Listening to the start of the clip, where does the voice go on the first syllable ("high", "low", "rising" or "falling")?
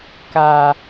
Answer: low